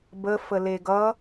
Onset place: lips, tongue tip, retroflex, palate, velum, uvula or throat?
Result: lips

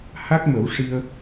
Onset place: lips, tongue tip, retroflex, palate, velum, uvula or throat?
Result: throat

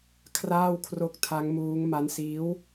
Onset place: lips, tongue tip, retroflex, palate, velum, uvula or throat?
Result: velum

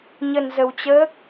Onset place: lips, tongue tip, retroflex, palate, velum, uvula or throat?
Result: palate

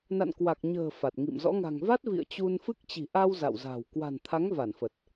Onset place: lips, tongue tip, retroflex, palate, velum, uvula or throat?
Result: tongue tip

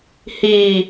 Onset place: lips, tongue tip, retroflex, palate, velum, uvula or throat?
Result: throat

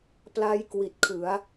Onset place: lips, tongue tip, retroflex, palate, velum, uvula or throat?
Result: lips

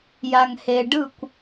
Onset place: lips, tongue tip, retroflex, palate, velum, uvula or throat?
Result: palate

